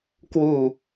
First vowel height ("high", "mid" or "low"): high